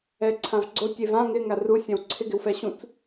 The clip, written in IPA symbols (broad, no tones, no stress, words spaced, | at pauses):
ɛǀʰãvɡ͡ǀo tʲevã ŋɪ ŋaru sʲɛ̃wǀʰɪ ɡɪwfɛɕũt͡s